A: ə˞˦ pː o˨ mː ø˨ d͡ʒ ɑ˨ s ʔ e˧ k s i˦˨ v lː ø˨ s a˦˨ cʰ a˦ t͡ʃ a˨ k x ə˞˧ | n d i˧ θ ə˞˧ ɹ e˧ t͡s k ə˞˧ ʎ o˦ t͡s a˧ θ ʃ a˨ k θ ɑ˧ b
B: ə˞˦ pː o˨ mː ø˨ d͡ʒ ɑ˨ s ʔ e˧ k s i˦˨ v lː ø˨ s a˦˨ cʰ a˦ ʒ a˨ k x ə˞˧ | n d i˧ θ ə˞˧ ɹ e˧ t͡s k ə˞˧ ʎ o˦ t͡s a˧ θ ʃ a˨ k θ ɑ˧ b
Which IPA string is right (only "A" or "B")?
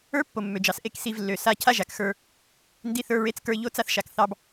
B